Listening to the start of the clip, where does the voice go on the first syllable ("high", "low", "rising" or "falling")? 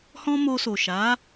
high